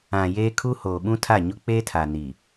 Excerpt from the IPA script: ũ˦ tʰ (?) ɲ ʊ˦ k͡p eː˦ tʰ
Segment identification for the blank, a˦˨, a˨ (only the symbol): a˦˨